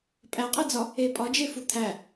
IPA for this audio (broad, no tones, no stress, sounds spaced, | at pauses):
pʼ æ qʼ e d͡z ɒ | e pʼ ɒ d͡ʒ e f u t̪ʰ æ